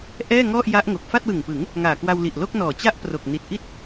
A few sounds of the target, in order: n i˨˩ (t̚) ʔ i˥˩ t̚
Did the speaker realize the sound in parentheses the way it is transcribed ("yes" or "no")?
yes